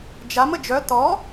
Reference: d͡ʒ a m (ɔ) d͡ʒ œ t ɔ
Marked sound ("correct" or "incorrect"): incorrect